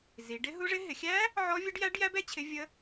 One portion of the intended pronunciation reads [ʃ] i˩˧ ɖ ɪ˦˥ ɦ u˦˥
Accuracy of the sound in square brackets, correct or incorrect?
incorrect